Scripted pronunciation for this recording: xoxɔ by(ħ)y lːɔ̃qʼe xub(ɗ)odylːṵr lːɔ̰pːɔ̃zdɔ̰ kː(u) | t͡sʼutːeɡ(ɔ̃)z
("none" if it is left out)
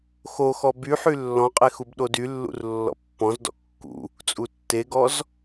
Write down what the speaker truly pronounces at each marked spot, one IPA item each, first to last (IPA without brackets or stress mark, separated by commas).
ħ, ɗ, ṵ, ɔ